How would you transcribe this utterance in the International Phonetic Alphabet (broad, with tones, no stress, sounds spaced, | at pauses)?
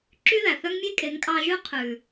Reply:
ǁ y˦ ð æ˨ θ œ˦ ŋ mʲ e˦ kʼ e˨˦ ŋ kʼ ɑ˧ ʒ ʉ˦ qʰ ʉ˨